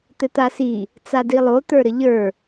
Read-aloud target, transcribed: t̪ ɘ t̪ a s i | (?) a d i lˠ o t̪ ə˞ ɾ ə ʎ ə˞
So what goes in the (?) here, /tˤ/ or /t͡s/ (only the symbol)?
t͡s